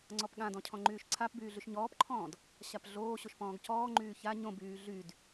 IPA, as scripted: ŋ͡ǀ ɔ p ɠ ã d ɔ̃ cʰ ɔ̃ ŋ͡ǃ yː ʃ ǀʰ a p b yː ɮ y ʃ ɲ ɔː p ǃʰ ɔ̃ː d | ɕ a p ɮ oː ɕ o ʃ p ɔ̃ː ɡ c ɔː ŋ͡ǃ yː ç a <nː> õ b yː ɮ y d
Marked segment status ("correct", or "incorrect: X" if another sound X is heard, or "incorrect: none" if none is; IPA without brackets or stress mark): incorrect: ɲ